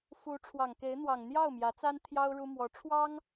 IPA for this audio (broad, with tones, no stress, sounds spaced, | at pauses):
f u˧˥ ʈ͡ʂʰ w ɑ˨˩ ŋ k e˧˥ ɪ̯ n̪ w ɑ˨˩ ŋ n̪ j ɑ˥˩ ʊ̯ m j ä˧˥ t͡s a˥ n t̪ʰ j ɑ˥ ʊ̯ ɻ u˥ m w ɔ˧˥ ʈ͡ʂʰ w ɑ˥ ŋ